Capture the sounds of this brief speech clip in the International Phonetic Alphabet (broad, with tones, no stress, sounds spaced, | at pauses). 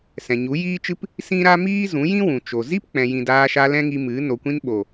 s ɛ̃˨ ɲ u˨˦ j iː˦ t͡ʃ ɨ˦ p | s ĩ˦ ɾ a˦ m iː˦ z ũ˨˦ j ĩ˦ w ũ˨ t͡ʃ o˨ z i˦ p k͡p ɛ̃˨ j ĩ˨ d aː˧ ʃ a˧ l ɛ̃˦ ŋ i˧ m ɨ˨˦ n o˨ kʷ ĩ˧ n ɓ o˨